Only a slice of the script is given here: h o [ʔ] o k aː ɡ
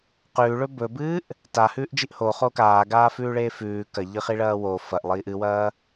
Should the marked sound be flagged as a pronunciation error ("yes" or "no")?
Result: yes